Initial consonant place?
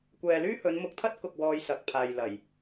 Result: velar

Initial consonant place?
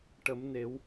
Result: retroflex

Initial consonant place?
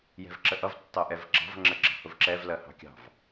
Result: palatal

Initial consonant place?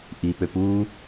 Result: glottal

